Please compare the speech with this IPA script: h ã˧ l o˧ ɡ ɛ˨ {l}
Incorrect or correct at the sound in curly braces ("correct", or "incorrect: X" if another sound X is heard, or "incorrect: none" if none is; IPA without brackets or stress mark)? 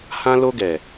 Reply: incorrect: none